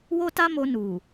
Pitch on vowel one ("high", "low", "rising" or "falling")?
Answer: high